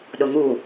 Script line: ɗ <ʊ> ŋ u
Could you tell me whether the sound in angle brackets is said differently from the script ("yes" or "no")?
no